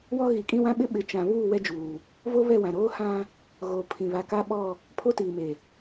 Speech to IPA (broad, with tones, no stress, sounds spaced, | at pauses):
w ɔ˦ ɣ i˨ kʼ ĩ˦ w ã˦ ɓ ɪ˦ ɓ ɪ˨˦ t͡ʃ ã˨ β uː˦˨ w ɛ˦ d͡ʒ uː˨ | v o˦ β ɛ˦˨ w ã˨ ɾ oː˦ h ã˦ | ɣ oː˨ pʰ ĩ˨ β a˨ k a˦ ɓ ɔ˦˨ | pʰ o˦ t iː˨ m e˨